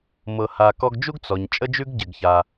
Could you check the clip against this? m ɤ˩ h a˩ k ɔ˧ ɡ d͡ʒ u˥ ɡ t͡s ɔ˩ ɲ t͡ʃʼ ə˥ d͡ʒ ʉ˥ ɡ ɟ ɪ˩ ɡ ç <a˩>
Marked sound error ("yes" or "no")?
no